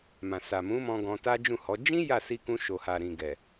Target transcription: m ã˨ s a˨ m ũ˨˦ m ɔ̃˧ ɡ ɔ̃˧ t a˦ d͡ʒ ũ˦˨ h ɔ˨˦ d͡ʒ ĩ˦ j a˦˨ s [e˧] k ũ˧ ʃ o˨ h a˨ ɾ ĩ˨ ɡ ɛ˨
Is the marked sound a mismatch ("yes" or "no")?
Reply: yes